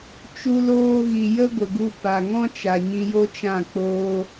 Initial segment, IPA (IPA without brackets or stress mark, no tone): t͡ʃ